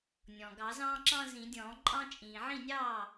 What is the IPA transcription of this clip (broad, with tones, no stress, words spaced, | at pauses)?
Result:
nʲɔ̃˩ɡɑ˨˩˦zɑ̃ː˦ǁɑ̃˦ zĩ˨˩˦dʲɔ̃ː˨˩˦ǃʼɑ̃˦ t͡ʃʼĩː˩ʕĩ˥˩nʲɑː˥˩